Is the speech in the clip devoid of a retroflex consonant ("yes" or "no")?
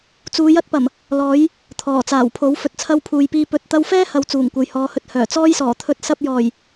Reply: yes